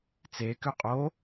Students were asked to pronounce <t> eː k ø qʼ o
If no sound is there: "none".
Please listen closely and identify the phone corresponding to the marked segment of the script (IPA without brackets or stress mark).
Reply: t͡s